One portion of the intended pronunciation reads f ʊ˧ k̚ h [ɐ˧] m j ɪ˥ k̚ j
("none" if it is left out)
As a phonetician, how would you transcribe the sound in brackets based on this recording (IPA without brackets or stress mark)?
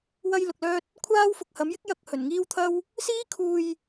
ɐ˨˥